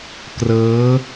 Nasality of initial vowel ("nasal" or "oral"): oral